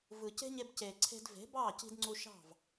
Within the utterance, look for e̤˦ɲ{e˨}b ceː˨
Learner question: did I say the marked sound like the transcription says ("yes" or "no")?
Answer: no